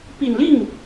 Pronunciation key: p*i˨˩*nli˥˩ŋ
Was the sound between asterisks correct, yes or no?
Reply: yes